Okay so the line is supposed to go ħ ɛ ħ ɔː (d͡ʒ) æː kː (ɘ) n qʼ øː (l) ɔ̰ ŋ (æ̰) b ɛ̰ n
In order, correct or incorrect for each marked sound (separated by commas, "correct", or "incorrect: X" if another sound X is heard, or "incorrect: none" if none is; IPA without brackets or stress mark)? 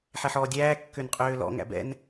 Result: incorrect: dʲ, incorrect: ø, correct, correct